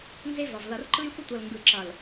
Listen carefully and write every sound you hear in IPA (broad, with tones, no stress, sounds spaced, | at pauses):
n z e˦ v ʌ˨ v l ʌ˨ r ǃ ɯ˦ j sʷ ə˦ tʷ ʌ˨ l ŋ ɡ ɯ˨ ǁ ʌ˨ l